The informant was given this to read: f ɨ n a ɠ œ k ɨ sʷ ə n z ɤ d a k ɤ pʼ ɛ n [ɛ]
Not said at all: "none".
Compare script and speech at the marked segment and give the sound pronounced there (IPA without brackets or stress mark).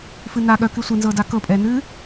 ɨ